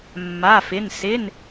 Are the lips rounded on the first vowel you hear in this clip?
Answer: no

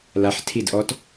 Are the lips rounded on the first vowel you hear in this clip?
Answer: no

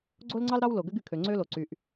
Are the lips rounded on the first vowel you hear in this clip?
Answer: yes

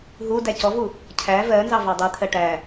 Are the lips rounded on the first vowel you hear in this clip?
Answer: yes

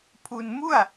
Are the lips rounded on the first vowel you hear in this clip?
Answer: yes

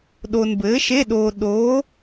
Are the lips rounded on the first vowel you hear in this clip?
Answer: yes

